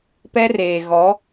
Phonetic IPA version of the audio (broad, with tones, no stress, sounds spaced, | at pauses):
p ɛ˦ r eː˨ ɣ ɔ˨˦